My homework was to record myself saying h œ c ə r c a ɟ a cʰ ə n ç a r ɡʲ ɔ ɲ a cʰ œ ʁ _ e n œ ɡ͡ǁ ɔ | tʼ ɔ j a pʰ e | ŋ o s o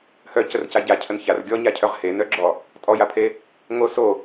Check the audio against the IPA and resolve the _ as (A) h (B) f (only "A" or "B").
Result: A